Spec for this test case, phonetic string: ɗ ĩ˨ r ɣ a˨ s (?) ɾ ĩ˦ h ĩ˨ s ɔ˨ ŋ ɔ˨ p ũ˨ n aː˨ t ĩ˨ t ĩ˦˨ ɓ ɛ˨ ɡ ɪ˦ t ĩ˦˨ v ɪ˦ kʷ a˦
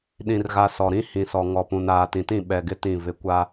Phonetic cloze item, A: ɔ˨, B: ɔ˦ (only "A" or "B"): A